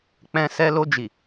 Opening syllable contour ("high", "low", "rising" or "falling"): low